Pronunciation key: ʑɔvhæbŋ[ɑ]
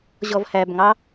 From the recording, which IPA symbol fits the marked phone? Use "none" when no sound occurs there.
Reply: ɑ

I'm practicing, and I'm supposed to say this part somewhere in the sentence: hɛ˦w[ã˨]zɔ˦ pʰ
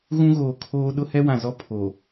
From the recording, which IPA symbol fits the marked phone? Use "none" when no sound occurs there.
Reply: ã˨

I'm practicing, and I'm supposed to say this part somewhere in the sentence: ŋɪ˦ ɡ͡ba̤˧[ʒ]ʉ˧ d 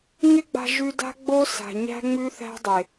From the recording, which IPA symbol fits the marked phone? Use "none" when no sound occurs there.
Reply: ʒ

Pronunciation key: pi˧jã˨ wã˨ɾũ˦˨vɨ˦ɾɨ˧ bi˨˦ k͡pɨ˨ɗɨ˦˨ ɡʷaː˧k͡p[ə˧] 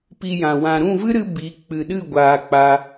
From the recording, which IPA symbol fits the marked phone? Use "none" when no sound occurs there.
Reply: a˧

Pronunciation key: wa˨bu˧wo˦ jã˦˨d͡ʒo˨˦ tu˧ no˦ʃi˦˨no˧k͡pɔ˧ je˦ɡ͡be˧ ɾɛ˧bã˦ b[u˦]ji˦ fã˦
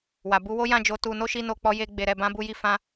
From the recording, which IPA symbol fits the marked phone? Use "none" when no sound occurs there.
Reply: u˦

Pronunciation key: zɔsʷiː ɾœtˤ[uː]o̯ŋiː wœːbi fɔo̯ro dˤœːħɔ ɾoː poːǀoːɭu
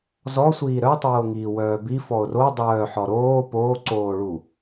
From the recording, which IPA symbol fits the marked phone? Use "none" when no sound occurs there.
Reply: uː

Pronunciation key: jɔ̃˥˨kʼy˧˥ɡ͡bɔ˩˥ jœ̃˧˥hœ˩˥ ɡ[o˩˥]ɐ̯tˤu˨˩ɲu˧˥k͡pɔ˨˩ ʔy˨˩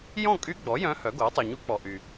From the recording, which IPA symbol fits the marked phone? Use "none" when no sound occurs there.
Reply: o˩˥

